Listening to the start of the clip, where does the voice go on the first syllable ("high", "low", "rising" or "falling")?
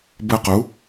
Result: high